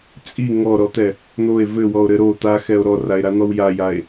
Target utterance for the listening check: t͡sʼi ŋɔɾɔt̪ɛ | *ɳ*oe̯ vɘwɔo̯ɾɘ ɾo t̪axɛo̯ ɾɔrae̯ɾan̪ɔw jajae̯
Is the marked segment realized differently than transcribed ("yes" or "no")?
yes